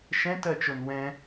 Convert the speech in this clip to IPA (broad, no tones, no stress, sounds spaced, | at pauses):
ʃ ɛ̃ t ɜ t͡ʃ o n w ɛ̃